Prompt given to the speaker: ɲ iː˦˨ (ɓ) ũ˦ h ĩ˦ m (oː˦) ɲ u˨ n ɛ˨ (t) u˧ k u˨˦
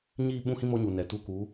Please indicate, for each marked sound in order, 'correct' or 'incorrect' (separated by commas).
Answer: correct, incorrect, correct